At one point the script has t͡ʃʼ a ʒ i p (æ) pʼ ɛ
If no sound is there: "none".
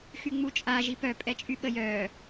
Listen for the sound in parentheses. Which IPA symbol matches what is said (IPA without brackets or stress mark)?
œ